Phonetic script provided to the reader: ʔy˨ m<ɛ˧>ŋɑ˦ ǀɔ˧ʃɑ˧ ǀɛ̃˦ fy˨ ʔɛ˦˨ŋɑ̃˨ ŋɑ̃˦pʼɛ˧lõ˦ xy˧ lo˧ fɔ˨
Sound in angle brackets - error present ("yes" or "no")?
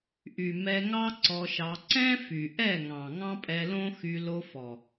no